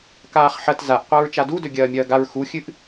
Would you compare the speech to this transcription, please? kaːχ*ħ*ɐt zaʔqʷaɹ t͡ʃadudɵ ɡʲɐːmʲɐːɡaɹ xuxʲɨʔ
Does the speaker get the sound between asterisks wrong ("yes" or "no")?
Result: no